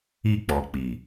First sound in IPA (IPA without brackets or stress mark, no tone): i